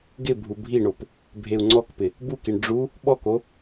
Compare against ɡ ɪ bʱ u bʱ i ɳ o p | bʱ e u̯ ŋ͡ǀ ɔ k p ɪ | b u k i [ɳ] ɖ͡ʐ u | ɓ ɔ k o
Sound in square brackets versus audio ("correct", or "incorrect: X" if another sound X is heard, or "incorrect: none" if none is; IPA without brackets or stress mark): correct